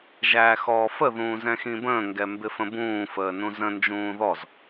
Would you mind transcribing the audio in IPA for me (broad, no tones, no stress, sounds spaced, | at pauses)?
ʒ æː x ɔː f ə ð ũː z ɛ̃ x ĩ b ə̃ː ŋ ɡ ɛ m b ɪ f ə̃ b ũː f əː n ũ z ə̃ n d͡ʒ ũː ð ɔ z